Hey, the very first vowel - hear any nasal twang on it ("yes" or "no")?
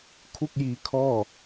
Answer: no